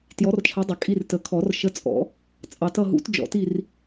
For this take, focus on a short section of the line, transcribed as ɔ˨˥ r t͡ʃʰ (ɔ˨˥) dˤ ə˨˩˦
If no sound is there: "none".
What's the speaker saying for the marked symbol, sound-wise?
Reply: ʌ˨˥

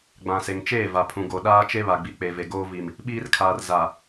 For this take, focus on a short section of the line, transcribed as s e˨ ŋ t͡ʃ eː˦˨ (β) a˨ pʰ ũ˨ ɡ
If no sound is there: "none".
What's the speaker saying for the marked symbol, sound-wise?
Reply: v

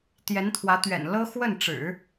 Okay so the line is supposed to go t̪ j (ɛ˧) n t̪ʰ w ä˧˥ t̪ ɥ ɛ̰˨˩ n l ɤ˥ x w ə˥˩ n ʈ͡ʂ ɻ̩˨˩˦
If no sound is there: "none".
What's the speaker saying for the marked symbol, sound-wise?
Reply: ɛ˧˥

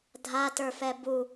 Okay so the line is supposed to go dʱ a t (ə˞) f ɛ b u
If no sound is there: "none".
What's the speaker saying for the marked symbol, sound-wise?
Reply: ə˞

